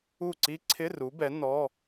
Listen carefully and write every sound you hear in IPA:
u˥˨ ǀi˦˥ǀʰɪ˧˥˧ru˨˦bɛ˨˦ nɔ˧˥˧

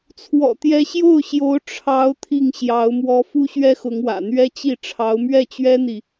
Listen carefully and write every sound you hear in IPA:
t͡sʰwɔ̰˨˩t̪jɛ˧˥ɕjo˥˩ʊ̯ɕjo˧˥ʊ̯ ʈ͡ʂʰɑ˧˥ʊ̯ t̪ʰi˥˩ŋɕjɑ˧˥ʊ̯mwɔ˥ fu˥ɕɥɛ˥xʊ˧˥ŋwä̰˨˩ n̪ɥɛ˥t͡ɕi˥˩ ʈ͡ʂʰɑ˧˥ʊ̯mɥɛ˥˩t͡ɕɥɛ˥n̪i˨

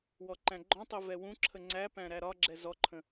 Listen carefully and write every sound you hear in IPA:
wɔǃæ̃ɡ͡ǃɔ̃tˤi vɛwũǁʰə ŋ͡ǀæpæ̃ ɾæɾɒɡ͡ǁɛ zɔǃʰə̃

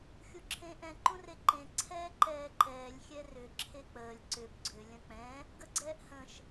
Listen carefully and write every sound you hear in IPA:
xʲuǁʰẽːʔɛ̃ ǃũreǃẽ ǀʰɛːǃɛːǃɛːlʲ xʲɛrʏ ǁʰek͡pəːlʲ ǀʏb ɡ͡ǀʏ lʲə̃k͡pɛ̃ | ɡəɡ͡ǀɛːʔhə̃ʃ

